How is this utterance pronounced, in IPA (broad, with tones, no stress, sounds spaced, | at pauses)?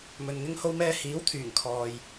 m ɵ˨ n ŋ ɪ˥ ŋ h o˥ w m ɛː˥ h iː˨˥ w t̪ʰ yː˨˩ ŋ kʰ ɔː˨ j